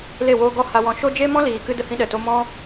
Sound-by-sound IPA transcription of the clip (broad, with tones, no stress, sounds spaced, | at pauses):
l e˦˨ w oː˦ ɡ ɔ˦ h a˧ w ɔ̃˧ ʃ o˦ d͡ʒ e˦ m ɔ̃˦ l iː˨ k ɨ˧ d ə˦ h ĩ˦ ɗ ɛ˨ t o˦ m ɔ̃˦